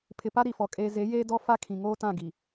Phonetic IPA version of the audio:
pʰɪ˨pa˦ɾi˨fɔ˨ kʼeː˨ze˨˦ jeː˦dɔ˦ fa˦kʰĩ˨ ŋoː˦tã˦˨ɡi˨

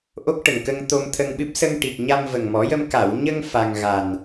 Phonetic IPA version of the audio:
ʔo˦˥k̚ʈə˨˩ŋkə˧ŋt̪o˧m t̪ʰə˧ŋɓɨ˦˥p̚ sə˧ŋʈi˨˩k̚ ɲa˧mvə˨˩ŋmɔ˨˩˦jə˧m ka˨˩˨wɲə˧ŋ fa˧ŋ ɣa˨˩n

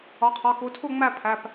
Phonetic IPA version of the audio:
ɒ˩˧˩qʰɒ˩˧˩ku˩˧tʰu˥˨ ŋ͡mæ˥˨pʰæ˩˧˩p

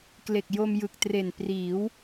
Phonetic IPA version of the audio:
kle˨˩k̚jo˧mjɯ˨˩k̚tre˨˩n priː˩˦w

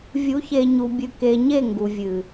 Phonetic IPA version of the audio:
vʲu˨˦çe˨ɲu˨ bʲɨ˨ke˨ɲe˦˨ ŋɡu˨vʲɨ˨

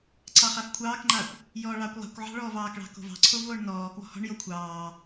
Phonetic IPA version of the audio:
ǀɑχafkʷʰɑːkŋ͡ǃaːkʷ | jɔːɭɑːkʷlˠa̤kʷʕɑ̤ ɭɔːvɑːkɭɑ̤ ko̤vɑ̤ǀʰov oːɳnɔːkwɔ̤ hɔ̤ɳjo kʷʰɑː

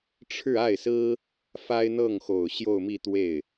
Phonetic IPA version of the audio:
ʈ͡ʂʰɻ̩˥˧a˥˩ɪ̯sɹ̩˥ | fa˥ɪ̯n̪ɤ˥˩ŋxo˨˩ʊ̯ ɕjo˥˧ʊ̯mi˥˧t̪we˥˩ɪ̯

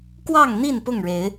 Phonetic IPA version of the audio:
kwɑ˥˨ŋn̪i˥˨n pʊ˥˨ŋɻe˨˦ɪ̯

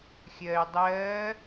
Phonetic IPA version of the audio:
xʲɜːy̯dˤɜː

